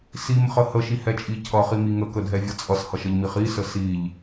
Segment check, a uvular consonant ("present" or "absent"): present